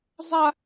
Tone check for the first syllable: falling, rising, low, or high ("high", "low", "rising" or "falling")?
high